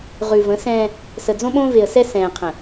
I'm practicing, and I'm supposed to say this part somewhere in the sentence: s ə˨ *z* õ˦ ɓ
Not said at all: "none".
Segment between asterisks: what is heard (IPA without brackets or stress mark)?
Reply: d͡z